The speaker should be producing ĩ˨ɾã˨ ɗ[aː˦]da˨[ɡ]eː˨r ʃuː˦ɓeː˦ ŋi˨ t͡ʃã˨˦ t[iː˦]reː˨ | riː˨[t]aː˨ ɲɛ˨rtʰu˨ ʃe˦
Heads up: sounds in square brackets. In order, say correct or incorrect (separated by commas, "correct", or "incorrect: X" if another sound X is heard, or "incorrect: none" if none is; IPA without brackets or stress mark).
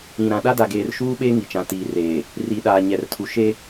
incorrect: a˦, correct, incorrect: iː˨, incorrect: ɗ